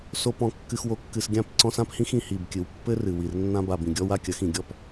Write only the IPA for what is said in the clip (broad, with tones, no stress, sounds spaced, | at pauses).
s o˨ p ɔ̃˨ kː ɨ˨ x w o˨ kː ɨ˨ s ɡʲ ã˦˨ p ǀ ɔ̃˦ s ã˦ p h ĩ˦ x ĩ˨ h i˦˨ b kʲ ɨ˨ w pː ɘ˦ r ɨ˨ w i˨ r nː ã˦ b a˨ b ĩ˨ ɡʲ ɔ˦ w a˦ kʲ ɐ˨˦ x ĩ˨ ɡʲ ɔ˦ p